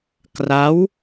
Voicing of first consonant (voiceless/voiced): voiceless